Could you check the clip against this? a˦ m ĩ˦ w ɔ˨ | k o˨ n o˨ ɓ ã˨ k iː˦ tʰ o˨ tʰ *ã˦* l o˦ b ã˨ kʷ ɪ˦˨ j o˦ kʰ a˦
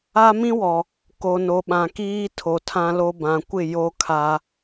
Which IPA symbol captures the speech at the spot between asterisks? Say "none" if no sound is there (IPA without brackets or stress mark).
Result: ã˦